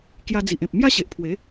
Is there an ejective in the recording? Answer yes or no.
no